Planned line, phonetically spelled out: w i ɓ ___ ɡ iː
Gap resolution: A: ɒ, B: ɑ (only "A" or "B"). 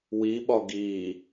A